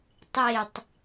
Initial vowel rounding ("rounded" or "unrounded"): unrounded